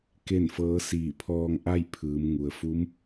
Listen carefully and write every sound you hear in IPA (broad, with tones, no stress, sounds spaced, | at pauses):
k e˥˨ n f ɤː˧˥ s iː˧˩ pʰ ɔː˧ ŋ ʔ a˥˨ j pʰ ɯː˩˧ m ŋ u˩ ə̯ f u˧˥ m